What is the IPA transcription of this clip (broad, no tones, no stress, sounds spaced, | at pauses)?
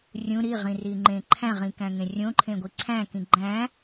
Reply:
rʲ ũ ɾ i ʁ ĩ r i ŋ͡ǃ ẽ ǃʰ æ̃ ʁ ĩ k æ̃ ŋ ẽ rʲ õ ǃʰ ẽ ɡʷ i ǀʰ æ̃ k ĩ ɡ͡ǃ æ̃